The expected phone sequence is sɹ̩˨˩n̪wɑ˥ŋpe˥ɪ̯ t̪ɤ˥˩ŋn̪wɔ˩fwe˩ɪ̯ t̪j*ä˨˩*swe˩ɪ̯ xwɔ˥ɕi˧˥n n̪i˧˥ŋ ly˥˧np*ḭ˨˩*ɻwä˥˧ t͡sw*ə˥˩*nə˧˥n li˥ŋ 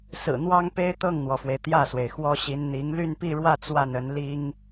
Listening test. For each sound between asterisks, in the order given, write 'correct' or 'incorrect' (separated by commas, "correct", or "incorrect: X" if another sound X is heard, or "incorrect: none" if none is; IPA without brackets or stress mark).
incorrect: ä˥˩, incorrect: i˥˧, incorrect: a˥˩